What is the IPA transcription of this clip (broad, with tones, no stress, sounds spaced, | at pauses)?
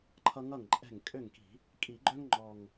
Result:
ǃʰ ʌ˦ ŋ ʌ˥˩ ŋ ǃʼ ɛ̤˥˩ ŋ kʼ ø˥˩ ŋ k i̤˧˩˧ | kʼ i˧˩˧ ɡ͡ǃ œ˦ ŋ ŋ͡ǃ ɔ˨˩ ŋ